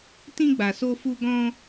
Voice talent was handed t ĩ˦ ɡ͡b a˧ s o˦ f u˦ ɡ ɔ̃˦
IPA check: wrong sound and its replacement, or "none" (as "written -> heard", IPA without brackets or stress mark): none